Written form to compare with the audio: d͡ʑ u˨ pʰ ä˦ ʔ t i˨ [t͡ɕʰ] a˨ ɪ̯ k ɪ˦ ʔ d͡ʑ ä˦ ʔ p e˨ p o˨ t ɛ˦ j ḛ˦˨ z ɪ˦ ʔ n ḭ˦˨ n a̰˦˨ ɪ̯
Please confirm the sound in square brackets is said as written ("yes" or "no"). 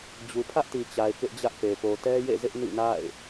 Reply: no